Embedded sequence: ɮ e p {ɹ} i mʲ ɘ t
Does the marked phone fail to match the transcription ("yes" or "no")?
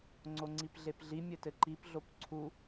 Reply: yes